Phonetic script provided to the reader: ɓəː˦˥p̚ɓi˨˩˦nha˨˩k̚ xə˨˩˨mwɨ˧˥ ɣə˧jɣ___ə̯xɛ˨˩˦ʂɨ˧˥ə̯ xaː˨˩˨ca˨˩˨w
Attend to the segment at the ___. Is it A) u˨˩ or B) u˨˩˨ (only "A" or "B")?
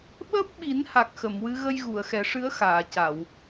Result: B